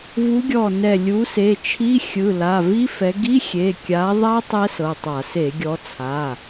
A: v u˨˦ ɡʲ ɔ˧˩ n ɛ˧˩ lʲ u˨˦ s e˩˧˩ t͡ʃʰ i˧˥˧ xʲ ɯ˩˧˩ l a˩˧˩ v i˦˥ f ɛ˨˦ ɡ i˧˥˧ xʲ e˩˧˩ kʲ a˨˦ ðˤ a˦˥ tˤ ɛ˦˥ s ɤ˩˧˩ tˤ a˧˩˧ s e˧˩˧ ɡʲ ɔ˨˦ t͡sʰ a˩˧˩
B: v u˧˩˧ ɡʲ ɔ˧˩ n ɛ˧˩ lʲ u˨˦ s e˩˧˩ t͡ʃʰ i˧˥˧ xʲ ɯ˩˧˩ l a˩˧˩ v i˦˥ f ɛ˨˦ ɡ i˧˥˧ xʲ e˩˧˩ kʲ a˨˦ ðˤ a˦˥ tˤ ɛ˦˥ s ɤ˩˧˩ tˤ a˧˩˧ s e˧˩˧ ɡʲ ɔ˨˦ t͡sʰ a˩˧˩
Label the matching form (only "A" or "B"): A